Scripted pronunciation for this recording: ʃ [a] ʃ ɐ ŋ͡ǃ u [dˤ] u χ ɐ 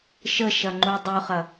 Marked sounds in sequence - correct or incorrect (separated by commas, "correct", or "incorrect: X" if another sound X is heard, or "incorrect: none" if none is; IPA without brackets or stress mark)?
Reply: incorrect: ə, correct